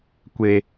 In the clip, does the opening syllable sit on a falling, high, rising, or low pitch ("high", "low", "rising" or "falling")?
low